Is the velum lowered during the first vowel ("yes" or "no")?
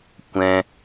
yes